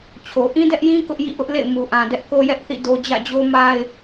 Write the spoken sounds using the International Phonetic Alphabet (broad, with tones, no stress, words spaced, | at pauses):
t͡ɕʰo˨ ʔĩ˦dɛ˦ʔjĩ˦ kʊ˦ʔ jḭ˦˨ʔʊ˦ʔ lḛ˦˨ɪ̯ mu˨ʔã˨dɛ˦ʔ ko˦jɛ˦ʔθḭ˦˨ do˦ d͡ʑä̰˦˨d͡ʑo˦ ma˦ɪ̯